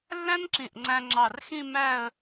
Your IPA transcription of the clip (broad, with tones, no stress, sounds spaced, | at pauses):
lː æ̃˥ n ǁ ĩ˧˩ ʔ ŋ͡ǀ æ̃˧ ŋ͡ǁ ɑ˧˩ r x ĩ˥˧ m æ˥˧ ə̯